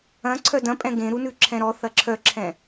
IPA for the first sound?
ɐ̃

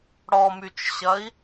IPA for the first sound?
ɽ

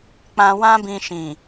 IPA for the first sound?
k͡p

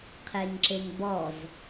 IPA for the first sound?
qʰ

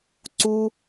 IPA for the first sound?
ǀ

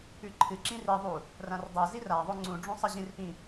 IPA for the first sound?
ʉ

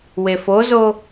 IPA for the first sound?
w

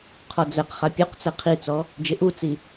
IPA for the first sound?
qʰ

